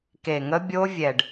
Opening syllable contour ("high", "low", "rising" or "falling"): low